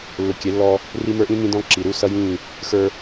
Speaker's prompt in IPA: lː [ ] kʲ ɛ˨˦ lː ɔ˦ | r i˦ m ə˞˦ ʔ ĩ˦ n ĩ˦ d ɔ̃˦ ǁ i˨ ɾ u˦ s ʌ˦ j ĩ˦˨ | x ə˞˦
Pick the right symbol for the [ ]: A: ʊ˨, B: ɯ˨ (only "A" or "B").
A